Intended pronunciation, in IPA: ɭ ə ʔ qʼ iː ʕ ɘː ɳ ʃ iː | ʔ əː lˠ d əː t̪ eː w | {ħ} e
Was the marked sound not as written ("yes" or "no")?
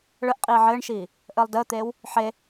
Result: no